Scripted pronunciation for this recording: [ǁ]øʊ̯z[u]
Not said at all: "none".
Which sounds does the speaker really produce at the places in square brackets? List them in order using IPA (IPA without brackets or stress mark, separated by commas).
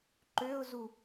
ǃ, u